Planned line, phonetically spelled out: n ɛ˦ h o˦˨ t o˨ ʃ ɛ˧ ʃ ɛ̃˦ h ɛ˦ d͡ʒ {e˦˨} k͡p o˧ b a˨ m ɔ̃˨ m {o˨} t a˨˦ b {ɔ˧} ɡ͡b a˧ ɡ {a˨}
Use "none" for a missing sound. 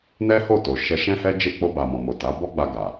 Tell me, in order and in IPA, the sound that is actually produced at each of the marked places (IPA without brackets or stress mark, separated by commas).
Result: e˦˨, o˨, ɔ˦, a˨